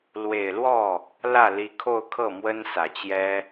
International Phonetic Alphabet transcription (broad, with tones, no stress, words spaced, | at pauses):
lwe˨˩ɪ̯lwɔ˥˩ | lä˥˩li˧˥kʰo˥˧ʊ̯kʰɤ˥˩ mwə˥nsä˨˩t͡ɕjɛ˥